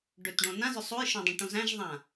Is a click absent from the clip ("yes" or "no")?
yes